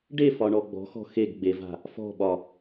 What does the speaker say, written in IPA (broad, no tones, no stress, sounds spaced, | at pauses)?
ɖ e f ɒ ɳ ɔ ɡ͡b ɔ̤ x ɔ̤ x e ɡ ɡ͡b e v a̤ | f ɔ̤ ɓ ɒ